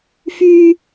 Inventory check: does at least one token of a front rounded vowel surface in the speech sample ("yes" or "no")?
yes